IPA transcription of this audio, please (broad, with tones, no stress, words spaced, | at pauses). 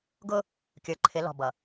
ɡʊ˦ | kʲə˞˨ǃʰɪ˨˦ lɔ̤˨bʌ˨